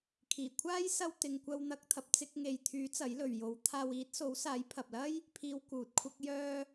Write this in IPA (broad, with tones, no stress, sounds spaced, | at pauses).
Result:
kʰ iː˨˩ kʷʰ aː˥ j s ɐ˧ w t̪ ɪ˨ ŋ kʷ ɐ˧ w n̪ ɐ˧ k̚ t̪ʰ ɐ˨ p̚ t͡s ɪ˧ k̚ ŋ e˨ j t̪ʰ yː˨˥ t͡s ɐ˨˥ j l ɵ˨ ɥ j o˨˥ w t̪ʰ aː˧ w iː˨˥ t̚ s o˨˥ w s aː˨˥ j pʰ ɐ˨ p̚ l ɐ˥ j | pʰ iː˨˧ w k uː˨ t̚ kʷʰ ɐ˧ k̚ j œː˧